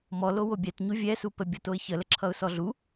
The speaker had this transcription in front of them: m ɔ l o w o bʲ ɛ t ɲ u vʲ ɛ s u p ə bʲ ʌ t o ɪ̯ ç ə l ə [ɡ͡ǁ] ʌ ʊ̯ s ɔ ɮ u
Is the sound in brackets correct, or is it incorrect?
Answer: incorrect